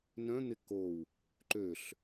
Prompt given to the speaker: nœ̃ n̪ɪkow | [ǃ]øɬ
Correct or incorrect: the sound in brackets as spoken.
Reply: correct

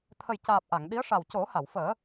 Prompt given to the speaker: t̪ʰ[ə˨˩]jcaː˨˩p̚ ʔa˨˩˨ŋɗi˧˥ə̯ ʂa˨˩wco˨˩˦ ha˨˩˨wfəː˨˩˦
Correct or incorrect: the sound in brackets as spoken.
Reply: correct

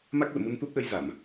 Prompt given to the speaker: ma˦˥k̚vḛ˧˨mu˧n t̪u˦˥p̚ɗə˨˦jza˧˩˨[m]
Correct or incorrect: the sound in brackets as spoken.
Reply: correct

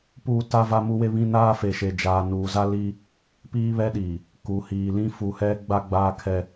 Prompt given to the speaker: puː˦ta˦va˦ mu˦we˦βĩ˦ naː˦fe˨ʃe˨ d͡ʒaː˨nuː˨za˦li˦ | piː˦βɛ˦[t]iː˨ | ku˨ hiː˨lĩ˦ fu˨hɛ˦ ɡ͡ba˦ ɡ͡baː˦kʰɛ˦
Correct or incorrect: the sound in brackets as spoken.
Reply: incorrect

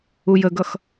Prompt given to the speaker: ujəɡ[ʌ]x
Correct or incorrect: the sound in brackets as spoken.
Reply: correct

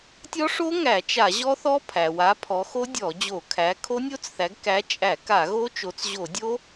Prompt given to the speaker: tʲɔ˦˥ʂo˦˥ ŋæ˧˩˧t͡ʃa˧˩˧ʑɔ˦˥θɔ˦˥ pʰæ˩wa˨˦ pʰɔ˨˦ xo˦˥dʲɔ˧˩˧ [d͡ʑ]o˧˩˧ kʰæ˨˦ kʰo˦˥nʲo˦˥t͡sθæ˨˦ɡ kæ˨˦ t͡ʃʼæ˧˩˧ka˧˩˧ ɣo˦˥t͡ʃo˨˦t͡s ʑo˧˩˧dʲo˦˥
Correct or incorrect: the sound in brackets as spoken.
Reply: correct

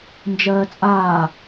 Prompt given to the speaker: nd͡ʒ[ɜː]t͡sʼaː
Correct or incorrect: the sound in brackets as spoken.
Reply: correct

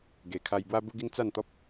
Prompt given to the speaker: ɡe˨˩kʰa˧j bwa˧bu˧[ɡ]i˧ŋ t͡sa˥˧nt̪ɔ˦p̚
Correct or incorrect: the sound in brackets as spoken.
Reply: correct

